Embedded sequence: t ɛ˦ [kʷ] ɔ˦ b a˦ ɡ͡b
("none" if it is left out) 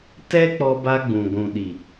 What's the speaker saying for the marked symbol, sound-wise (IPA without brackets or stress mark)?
k͡p